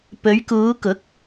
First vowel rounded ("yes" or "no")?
yes